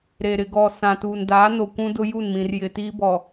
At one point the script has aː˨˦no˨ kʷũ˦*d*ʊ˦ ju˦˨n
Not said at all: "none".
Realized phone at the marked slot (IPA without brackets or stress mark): d